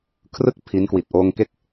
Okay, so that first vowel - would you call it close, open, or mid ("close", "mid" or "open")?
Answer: close